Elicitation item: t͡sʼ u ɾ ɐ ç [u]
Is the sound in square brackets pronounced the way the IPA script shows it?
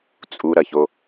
no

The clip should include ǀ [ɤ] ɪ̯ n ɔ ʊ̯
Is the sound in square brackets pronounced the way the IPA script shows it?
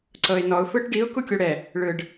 yes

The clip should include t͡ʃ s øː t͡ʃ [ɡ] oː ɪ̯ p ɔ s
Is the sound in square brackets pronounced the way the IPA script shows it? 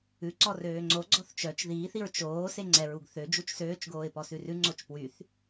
yes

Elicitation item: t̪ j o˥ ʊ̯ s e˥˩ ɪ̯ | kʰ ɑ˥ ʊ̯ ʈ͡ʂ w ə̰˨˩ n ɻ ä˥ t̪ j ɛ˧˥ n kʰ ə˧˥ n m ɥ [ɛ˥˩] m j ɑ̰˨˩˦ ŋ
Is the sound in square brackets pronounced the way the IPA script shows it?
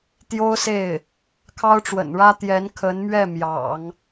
yes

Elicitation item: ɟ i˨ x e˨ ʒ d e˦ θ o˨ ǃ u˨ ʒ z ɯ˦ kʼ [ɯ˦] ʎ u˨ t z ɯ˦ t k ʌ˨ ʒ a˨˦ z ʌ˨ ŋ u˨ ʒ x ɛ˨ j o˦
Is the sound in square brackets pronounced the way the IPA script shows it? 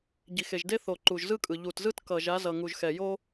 no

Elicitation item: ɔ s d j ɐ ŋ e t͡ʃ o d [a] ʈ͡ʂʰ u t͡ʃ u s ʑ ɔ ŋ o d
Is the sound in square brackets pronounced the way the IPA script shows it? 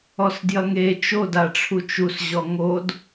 yes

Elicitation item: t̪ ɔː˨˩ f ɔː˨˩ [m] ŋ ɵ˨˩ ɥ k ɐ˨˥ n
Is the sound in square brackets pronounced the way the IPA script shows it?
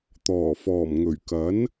yes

